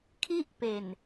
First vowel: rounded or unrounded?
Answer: unrounded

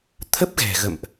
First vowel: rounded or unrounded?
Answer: unrounded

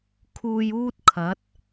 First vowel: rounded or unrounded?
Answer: rounded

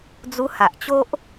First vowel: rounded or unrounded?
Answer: rounded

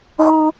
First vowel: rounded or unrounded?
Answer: rounded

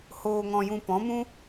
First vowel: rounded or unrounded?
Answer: rounded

